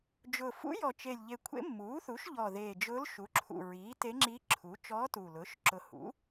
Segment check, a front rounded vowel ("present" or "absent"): absent